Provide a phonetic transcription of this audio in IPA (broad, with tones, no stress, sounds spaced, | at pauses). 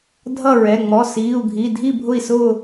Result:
dʱ ʌ˥˨ ɹ ɛ˩˧˩ ŋ͡m ɔ˩˧˩ s iː˩˧˩ u̯ ɡʱ i˩˧˩ dʱ i˥˨ bʱ ʊ˥˨ i̯ s ʊː˥˨